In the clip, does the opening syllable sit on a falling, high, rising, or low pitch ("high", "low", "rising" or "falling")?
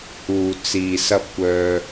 low